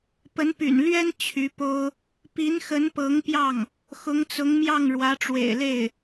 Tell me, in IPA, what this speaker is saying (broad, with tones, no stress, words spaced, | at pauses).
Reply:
pə˧˥npy̰˨˩n lɥɛ˥n t͡ɕʰy˧˥po˥ʊ̯ | pi˧˥nxə˧˥npɤ˧˥ŋpjɑ˥˩ŋ | xʊ˧˥ŋt͡sʊ˧˥ŋmjɑ˥˩ŋ ɻwä˧˥ʈ͡ʂwḛ˨˩ɪ̯le˥˩ɪ̯